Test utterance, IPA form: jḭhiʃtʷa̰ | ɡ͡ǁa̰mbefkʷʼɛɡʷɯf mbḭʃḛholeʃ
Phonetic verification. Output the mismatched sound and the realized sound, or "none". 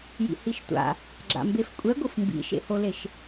none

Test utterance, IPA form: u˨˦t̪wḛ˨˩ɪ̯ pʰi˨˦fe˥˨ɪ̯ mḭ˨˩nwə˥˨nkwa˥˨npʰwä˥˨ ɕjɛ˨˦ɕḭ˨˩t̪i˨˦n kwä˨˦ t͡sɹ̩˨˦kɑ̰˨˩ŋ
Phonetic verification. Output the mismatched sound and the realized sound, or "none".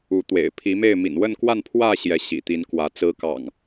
f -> m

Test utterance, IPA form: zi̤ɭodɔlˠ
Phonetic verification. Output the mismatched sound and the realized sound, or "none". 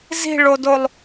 ɔ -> o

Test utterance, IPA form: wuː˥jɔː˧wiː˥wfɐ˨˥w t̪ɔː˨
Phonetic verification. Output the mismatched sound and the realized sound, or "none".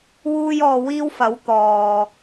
none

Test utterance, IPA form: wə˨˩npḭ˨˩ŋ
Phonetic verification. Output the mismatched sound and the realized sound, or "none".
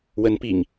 ə˨˩ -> ə˨˦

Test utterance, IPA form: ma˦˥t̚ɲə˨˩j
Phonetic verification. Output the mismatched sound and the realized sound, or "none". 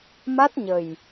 none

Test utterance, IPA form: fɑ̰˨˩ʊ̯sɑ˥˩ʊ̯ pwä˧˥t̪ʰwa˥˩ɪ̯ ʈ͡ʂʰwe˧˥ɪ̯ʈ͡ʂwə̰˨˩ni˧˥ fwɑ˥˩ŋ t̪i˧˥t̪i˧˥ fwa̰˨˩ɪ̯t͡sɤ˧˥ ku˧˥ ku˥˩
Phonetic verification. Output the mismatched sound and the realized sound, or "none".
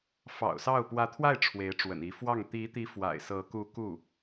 t͡s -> s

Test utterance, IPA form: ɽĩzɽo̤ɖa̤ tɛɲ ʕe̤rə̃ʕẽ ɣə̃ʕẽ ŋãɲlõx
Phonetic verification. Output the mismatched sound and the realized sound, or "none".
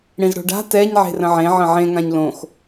ɣ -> ʕ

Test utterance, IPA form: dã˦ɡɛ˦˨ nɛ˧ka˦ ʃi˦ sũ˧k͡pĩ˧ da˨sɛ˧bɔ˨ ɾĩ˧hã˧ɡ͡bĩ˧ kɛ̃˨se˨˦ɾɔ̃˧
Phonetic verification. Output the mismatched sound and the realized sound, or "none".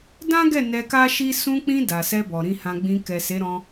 ɛ̃˨ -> ɛ˨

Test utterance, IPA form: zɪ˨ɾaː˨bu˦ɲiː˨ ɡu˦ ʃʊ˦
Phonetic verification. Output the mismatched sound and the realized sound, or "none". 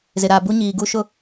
none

